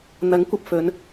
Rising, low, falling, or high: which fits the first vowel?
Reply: rising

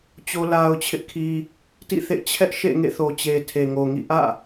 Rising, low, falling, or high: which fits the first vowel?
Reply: high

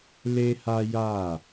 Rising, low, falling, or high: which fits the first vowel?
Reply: high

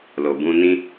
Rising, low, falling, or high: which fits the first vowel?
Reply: low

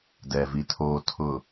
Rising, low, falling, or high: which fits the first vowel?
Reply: low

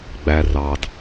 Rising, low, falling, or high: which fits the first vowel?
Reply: low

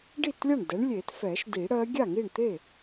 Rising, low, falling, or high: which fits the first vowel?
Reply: falling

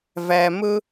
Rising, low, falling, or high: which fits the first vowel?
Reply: low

